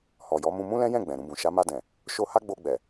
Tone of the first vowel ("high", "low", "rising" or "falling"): low